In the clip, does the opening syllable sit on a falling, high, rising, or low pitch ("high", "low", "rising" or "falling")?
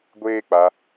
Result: high